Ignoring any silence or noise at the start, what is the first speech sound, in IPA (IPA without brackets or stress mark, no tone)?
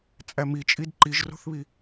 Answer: t͡sʼ